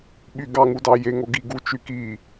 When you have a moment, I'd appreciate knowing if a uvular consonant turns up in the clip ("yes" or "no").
no